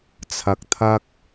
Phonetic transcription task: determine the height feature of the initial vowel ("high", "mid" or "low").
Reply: low